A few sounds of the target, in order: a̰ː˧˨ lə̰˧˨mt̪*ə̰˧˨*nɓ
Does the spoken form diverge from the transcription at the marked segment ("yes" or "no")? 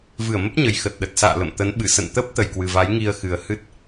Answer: yes